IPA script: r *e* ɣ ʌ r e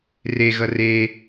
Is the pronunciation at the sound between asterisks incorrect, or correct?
correct